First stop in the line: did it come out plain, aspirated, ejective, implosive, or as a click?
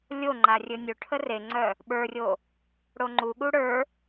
click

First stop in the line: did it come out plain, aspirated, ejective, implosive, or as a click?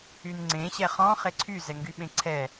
click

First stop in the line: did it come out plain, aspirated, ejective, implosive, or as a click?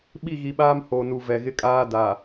implosive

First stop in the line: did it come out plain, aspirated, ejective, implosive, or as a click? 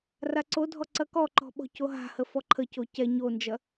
click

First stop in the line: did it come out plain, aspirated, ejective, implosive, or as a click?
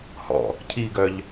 aspirated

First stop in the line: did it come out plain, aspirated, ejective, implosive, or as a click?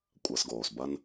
ejective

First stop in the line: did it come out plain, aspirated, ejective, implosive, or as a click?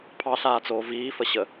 aspirated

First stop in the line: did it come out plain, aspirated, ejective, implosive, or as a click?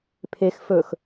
aspirated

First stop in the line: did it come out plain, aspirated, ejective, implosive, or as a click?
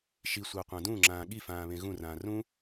plain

